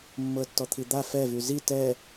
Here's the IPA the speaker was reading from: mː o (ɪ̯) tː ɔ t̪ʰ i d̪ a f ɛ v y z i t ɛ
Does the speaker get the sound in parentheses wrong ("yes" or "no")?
yes